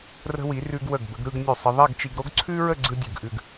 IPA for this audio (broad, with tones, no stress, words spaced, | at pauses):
rə̤˧wi˩˧ rʉ˧ɡ wə˧˩ɡ bə˩˧ɡɾɯ˥˧ɡ nʲʉ˧˩sˤə˧ðˤɛ˥˧ɡt͡ʃi˧ɡ ɾo˥ɡǀʰʉ˥ɹə˥˧ ɡ͡ǀɯ˥dʲɯ˧˩ɡʔʉ˥˧ɡ